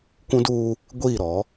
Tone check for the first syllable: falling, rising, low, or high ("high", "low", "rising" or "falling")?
high